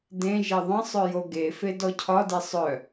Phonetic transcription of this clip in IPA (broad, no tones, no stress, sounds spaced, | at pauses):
d ẽ ʒ e ðˤ ə̃ sˤ œ j o ɡ e f e d ɔ cʰ ɒ d e sˤ œ